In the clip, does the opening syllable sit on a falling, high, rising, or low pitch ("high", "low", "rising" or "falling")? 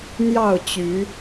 falling